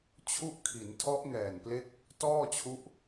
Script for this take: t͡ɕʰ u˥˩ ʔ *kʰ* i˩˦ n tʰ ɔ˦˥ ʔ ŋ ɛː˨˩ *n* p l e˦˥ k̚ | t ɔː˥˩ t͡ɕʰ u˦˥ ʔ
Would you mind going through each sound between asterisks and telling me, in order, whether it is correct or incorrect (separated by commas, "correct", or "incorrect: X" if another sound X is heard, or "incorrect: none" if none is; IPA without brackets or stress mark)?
correct, correct